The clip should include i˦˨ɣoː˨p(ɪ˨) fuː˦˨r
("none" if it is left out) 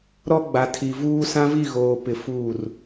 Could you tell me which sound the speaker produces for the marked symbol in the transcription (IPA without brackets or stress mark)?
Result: ɪ˨